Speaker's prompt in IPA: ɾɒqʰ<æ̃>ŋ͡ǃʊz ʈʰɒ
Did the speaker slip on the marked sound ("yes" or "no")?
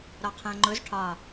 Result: no